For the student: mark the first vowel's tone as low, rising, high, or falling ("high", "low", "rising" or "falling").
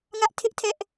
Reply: high